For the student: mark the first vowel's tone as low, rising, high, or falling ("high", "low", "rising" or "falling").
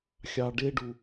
low